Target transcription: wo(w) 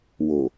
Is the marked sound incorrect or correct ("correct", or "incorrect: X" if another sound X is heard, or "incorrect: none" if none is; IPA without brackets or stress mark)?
incorrect: none